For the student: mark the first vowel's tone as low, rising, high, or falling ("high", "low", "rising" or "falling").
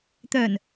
low